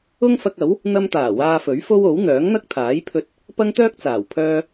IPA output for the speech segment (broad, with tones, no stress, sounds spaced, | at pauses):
ʊ˥ ŋ f ɐ˧ k̚ ɐ˨˥ w | n̪ ɐ˧ m t̪ aː˨˩ w aː˧ f ɵ˨˥ ɥ f o˥ w o˨˥ w n̪ œː˨˥ ŋ n̪ ɐ˥ k̚ t̪ʰ aː˨˥ j pʰ ɵ˧ t̚ | p ɐ˥ ŋ t̪ œː˥ k̚ t͡s aː˨˩ w pʰ œː˧